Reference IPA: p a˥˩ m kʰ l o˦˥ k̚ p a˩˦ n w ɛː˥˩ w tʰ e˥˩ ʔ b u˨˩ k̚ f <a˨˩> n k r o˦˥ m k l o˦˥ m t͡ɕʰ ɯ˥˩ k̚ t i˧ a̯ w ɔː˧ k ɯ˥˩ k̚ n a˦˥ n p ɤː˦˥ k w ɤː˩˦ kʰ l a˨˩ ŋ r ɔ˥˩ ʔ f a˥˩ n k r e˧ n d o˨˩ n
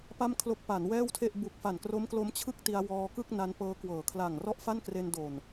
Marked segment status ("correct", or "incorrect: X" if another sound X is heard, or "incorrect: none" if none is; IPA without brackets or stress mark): correct